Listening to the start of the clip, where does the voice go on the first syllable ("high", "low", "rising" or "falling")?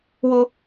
high